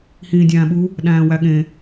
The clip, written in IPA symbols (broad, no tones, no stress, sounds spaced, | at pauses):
h ĩː dʲ æ̃ː ɓ u | ɗ æ̃ː w æ ɠ ẽ